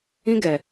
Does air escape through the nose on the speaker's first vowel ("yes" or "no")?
yes